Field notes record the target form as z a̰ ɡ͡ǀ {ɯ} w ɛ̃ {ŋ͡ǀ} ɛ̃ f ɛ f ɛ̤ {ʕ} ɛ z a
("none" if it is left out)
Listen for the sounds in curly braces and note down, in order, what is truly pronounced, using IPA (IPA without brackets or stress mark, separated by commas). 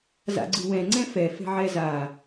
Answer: ɯ, ŋ͡ǀ, ʕ